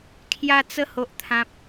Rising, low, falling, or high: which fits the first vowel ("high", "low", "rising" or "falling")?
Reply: high